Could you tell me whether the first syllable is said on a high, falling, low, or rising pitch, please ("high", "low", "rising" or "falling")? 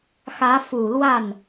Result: rising